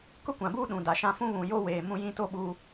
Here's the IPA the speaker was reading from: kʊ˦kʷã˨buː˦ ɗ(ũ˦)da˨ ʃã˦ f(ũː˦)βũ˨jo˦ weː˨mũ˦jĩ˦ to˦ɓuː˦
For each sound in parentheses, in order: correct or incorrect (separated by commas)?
incorrect, incorrect